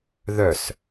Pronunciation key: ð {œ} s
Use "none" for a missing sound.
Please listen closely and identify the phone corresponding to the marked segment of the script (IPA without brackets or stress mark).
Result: œ